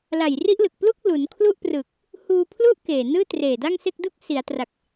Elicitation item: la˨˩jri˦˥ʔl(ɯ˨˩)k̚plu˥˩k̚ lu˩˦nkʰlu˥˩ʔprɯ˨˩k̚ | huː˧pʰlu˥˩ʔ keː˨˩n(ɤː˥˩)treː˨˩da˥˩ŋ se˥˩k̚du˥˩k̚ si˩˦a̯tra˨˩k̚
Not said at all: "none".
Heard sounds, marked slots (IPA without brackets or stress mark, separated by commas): ɯ˨˩, ɯː˥˩